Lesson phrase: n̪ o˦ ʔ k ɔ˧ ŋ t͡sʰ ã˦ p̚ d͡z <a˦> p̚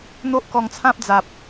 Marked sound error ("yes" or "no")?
yes